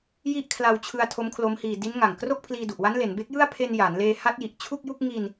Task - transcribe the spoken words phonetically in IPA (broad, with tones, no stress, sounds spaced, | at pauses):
j i˥˩ ʔ kʰ l a˧ w t͡ɕʰ ɯ˧ a̯ tʰ o˦˥ m kʰ l o˦˥ m h iː˧ d i˦˥ n ŋ a˨˩ ŋ k r o˥˩ k̚ pʰ l iː˧ d u˨˩ ʔ w a˦˥ n l e˩˦ n b e˦˥ k̚ j ɯ˥˩ a̯ pʰ e˧ n j aː˩˦ n l eː˧ h a˦˥ t̚ j i˨˩ ʔ t͡ɕʰ u˥˩ k̚ j u˥˩ k̚ ŋ i˧ n